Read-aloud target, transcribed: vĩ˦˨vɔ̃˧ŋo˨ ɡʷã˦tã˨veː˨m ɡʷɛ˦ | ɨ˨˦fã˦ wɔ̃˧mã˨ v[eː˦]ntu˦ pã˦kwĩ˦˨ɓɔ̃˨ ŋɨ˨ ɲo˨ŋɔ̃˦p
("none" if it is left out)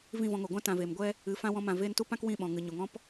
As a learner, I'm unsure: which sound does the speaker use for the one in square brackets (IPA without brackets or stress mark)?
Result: eː˦